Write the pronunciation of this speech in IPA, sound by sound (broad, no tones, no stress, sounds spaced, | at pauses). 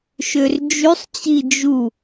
ʃ ø r d͡ʒ y sˤ t͡ɕ i d͡ʒ u